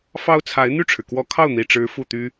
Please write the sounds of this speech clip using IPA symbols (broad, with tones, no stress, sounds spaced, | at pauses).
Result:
f ɑ˥ ʊ̯ t͡sʰ a˧˥ ɪ̯ n̪ y˥˩ ʈ͡ʂʰ ɻ̩˩ k w ɔ˧˥ kʰ ɑ˥˩ ʊ̯ n̪ i˨˩ ʈ͡ʂ ɻ̩˧˥ f u˥˩ t̪ y˥